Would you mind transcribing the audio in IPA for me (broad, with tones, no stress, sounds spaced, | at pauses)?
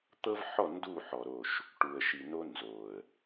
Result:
t̪ ɤ˦ v ħ ɔ˦˨ n d u˦˨ ħ ɔ˨ ɾ o˦˨ ʃ | ʈ u˨ ə̯ ʃ i˨ n o˦ n z o˨ ə̯